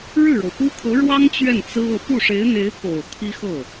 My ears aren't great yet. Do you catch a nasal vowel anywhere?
no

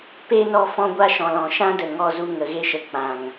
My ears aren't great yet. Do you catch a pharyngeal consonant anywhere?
no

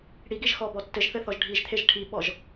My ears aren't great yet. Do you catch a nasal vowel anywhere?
no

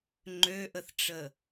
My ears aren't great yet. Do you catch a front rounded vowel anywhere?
yes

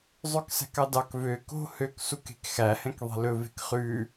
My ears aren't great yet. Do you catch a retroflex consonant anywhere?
no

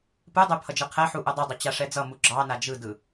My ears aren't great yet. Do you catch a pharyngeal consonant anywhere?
yes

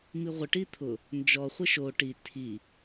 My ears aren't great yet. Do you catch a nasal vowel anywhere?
no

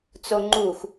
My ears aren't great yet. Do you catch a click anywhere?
yes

